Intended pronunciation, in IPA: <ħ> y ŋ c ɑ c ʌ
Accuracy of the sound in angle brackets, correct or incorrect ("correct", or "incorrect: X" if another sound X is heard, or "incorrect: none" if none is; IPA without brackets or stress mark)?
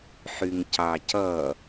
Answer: correct